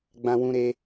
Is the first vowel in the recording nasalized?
yes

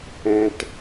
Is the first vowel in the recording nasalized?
yes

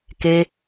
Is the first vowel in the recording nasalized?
no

